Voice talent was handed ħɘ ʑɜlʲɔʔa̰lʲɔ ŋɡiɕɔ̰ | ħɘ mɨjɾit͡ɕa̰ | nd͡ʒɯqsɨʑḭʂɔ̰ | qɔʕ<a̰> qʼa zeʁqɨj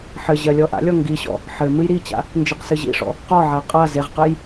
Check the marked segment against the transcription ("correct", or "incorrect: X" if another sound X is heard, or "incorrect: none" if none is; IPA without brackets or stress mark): incorrect: a